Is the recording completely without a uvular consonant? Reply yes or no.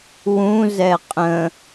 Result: no